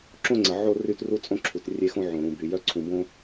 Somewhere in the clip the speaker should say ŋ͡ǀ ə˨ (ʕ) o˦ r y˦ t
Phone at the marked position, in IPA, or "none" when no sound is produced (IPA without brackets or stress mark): ʕ